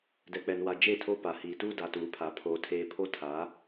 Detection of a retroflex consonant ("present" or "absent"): absent